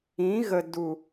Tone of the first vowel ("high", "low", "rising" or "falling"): rising